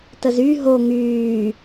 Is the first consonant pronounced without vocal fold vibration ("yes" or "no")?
yes